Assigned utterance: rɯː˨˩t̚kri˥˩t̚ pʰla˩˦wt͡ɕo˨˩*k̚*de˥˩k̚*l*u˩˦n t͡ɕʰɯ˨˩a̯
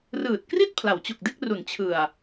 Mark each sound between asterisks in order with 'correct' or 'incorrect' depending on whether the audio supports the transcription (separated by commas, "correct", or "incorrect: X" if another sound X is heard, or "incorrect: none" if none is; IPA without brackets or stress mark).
correct, incorrect: r